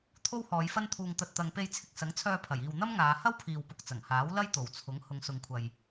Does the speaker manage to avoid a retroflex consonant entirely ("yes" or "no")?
yes